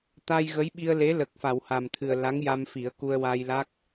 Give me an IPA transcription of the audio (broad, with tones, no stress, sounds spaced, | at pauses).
t̪ a˧ j ɣ ə˧˥ j ɓ i˧ ə̯ l e˧˥ l ə˨˩ k̚ f a˨˩˨ w h a˨˩ m t̪ʰ ɨ˨˩ ə̯ l a˧˥ ŋ j a˧ m f i˨˩˦ ə̯ k u˧ ə̯ w a˧ j l a˦˥ k̚